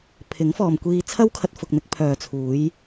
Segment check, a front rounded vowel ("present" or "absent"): present